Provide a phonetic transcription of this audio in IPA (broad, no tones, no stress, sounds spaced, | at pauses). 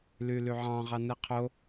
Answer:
l y l y ʕ ɑ̃ ʁ ɑ n ɯ qʰ o